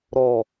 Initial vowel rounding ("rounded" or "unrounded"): rounded